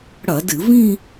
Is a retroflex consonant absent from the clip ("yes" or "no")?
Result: no